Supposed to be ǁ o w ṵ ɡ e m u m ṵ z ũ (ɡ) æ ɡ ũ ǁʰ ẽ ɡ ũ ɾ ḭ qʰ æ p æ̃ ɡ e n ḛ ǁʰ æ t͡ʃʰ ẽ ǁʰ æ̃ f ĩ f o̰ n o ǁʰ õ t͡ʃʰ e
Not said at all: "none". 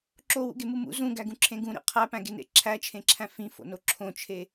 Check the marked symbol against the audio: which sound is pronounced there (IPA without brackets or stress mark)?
ɡ